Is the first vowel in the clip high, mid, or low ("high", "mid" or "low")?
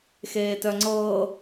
mid